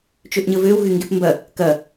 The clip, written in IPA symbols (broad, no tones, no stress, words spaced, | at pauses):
t͡ʃøʔɲəvøw ɣyŋɡepmbɐ | kɐ